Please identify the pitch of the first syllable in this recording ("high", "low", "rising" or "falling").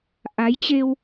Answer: rising